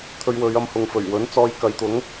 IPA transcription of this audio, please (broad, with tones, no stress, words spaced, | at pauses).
t̪ʰɵ˧ɥwɵ˨˧ɥ ɐ˧mhʊ˨ŋfɵ˨˩ɥwɵ˨˥n t͡sɔː˧jkɐ˨˧jt̪ʊ˨˥ŋ